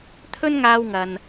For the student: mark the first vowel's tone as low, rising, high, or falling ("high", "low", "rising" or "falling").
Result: high